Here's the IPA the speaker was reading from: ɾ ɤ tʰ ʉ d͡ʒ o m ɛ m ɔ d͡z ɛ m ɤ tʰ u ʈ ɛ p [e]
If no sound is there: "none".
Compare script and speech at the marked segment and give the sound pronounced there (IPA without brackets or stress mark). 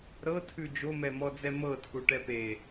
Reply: e